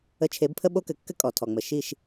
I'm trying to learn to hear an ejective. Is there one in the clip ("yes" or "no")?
yes